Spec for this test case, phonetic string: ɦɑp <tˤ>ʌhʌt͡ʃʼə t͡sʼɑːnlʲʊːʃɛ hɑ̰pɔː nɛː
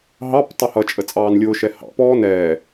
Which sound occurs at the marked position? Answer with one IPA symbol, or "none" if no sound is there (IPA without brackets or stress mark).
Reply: tˤ